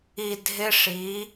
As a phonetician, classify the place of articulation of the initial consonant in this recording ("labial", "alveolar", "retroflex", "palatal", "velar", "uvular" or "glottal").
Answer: alveolar